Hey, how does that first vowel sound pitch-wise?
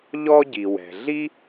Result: high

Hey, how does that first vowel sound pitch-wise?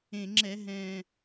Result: low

